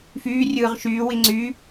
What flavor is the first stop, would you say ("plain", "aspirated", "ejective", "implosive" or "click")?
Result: click